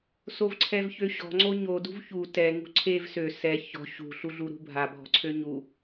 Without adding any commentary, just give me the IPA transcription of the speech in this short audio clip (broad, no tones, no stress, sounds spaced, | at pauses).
s o v ǀʰ ɛ v ç ø ɕ ɔ̤ ŋ͡ǀ o ɲ o d ṳ v ç u t ɛ ŋ ṳ ǀʰ e v s ø s ɛ ç ɔ̤ ɕ ṳ ɬ u ɮ u ɾ ṳ bʱ a bʱ ɔ̤ ǀʰ ø ɲ u